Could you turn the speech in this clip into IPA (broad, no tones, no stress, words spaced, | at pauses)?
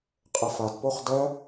qʼəfadpoχ dɜ